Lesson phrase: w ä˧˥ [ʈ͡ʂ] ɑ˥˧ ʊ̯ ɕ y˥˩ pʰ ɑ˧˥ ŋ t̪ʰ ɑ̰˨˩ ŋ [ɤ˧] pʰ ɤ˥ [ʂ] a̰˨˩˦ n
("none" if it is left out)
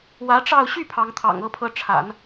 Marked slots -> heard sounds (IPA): ʈ͡ʂ, ɤ˥, ʈ͡ʂʰ

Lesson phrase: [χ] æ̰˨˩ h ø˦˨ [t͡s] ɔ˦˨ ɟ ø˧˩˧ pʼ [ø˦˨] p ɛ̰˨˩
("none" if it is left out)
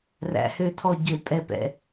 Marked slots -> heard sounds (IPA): r, tʰ, ɛ˦˨

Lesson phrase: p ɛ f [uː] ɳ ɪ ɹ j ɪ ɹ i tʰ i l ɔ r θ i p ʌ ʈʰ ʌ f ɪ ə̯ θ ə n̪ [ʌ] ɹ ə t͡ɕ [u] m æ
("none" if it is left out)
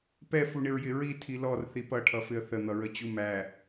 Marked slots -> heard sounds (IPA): u, ʌ, u

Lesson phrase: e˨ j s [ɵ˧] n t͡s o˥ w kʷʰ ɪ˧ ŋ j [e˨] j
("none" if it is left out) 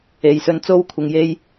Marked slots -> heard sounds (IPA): ɵ˧, e˥

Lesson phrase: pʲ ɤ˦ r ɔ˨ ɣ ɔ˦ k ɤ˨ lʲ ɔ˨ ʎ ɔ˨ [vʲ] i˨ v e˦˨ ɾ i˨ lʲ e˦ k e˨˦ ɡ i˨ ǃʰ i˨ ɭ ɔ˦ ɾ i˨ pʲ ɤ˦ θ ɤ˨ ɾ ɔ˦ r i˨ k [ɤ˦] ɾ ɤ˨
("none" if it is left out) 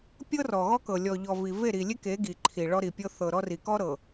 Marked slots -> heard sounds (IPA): v, ɔ˦

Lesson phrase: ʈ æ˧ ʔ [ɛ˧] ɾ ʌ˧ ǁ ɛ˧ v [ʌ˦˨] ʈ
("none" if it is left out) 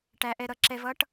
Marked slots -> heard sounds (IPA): ɛ˧, ʌ˦

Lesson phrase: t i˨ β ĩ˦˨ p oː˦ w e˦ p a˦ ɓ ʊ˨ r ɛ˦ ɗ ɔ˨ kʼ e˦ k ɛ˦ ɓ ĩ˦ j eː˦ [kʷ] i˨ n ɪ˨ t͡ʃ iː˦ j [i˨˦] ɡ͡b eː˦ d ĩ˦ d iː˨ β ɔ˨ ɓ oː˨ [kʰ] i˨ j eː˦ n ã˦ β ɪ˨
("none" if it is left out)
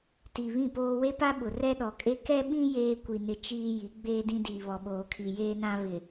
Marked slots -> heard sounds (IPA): kʷ, i˨˦, kʰ

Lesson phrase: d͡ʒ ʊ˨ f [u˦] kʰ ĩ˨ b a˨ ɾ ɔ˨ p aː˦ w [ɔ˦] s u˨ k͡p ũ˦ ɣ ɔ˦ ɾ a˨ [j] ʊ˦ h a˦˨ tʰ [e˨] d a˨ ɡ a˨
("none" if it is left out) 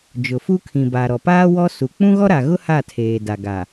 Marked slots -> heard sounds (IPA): u˦, ɔ˦, ɣ, eː˨

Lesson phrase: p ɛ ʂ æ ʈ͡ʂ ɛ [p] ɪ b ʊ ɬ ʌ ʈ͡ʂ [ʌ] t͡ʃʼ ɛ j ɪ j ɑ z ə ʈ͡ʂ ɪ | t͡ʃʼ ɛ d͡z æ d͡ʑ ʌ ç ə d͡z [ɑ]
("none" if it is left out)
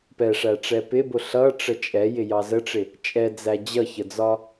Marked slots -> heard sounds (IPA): p, ə, ɒ

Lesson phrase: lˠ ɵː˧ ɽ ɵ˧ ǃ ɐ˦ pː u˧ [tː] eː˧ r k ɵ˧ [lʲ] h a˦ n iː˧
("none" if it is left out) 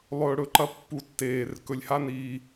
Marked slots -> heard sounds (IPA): tː, lʲ

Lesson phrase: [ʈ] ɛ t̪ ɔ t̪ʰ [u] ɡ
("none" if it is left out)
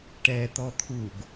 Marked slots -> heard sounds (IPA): ʈ, u

